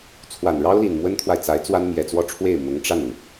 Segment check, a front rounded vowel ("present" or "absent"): absent